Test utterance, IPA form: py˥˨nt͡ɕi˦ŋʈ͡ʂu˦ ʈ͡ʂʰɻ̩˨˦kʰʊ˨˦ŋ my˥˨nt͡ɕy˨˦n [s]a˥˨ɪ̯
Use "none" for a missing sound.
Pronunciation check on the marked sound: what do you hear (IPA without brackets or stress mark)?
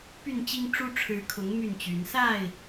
s